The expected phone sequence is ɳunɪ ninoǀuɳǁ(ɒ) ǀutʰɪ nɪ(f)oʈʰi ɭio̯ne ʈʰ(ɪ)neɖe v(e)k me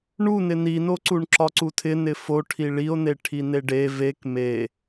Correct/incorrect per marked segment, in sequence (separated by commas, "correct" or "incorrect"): correct, correct, incorrect, correct